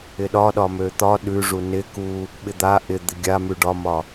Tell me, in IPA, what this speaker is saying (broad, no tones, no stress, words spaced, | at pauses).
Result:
ɪɗɒɗɒ møt̪ɒ ɗʉʐu nɪku | ɓɪd̪a ʔɪ d̪ɪɡʲamʉ ɖɒmɒ